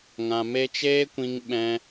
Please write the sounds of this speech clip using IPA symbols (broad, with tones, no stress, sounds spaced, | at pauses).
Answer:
ŋ ã˨ m e˧ t͡ʃ eː˦ kʷ ĩ˧ ŋ ɓ ɛ̃˧